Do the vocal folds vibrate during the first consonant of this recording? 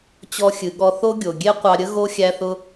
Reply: no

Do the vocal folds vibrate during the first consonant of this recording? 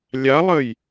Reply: yes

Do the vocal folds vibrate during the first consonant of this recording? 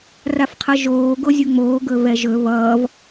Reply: yes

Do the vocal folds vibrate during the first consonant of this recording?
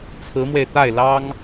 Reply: no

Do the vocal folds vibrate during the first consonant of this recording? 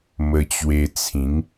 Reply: yes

